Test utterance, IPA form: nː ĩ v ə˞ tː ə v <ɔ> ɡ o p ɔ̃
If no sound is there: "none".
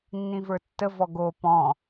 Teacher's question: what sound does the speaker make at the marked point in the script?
ɔ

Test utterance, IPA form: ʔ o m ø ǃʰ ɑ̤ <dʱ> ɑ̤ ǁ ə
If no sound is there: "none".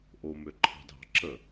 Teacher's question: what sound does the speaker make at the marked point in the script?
dʱ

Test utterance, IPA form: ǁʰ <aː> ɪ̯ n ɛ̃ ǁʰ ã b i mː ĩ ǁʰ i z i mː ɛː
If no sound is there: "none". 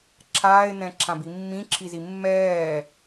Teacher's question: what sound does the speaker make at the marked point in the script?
aː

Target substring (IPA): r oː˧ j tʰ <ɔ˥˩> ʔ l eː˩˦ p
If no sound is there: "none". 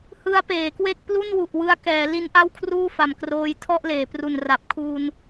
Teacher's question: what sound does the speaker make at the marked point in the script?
ɔ˥˩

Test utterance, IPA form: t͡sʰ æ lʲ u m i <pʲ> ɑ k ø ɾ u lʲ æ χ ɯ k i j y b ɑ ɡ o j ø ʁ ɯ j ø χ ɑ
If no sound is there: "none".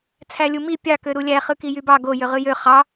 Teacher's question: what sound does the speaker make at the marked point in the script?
pʲ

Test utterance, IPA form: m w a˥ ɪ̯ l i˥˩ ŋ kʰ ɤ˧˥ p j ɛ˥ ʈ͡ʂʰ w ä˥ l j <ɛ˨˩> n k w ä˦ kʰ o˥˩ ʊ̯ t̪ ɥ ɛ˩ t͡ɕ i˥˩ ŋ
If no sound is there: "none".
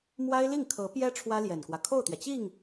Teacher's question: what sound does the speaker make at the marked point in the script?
ɛ˨˩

